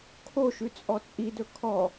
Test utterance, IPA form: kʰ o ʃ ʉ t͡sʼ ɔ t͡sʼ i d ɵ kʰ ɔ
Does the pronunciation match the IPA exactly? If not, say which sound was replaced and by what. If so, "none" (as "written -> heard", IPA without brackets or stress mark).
none